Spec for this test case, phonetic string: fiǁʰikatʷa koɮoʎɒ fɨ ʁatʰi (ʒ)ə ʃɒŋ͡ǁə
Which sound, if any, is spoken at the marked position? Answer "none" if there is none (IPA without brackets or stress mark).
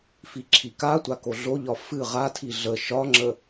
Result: ɮ